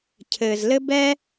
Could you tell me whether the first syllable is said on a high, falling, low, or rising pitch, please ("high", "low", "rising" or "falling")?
low